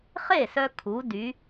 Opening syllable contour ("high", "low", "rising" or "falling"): falling